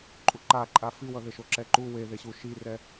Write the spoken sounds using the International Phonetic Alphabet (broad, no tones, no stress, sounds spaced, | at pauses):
ǃʼ u ǃ a ǃʼ a f i w ʌ ð e ʃ o ǁ ɛ ǃ u w e ð e ɕ u ʃ i r ɛ